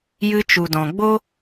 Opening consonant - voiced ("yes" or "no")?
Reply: yes